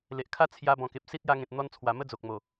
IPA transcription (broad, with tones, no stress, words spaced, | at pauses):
le˨ʔkʰa˦ t͡sʰja˧ bɔ̃˨˩ke˨p̚ si˦t̚ja˧ŋẽ˨t̚ n̪ɔ˧nt͡sʰwa˨˩ mə˦d͡zo˨k̚mo˨˩